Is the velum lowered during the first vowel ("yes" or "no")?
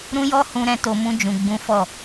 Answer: yes